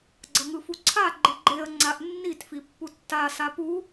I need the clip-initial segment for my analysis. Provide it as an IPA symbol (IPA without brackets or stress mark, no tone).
ɡ͡ǀ